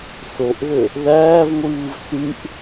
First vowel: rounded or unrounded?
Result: rounded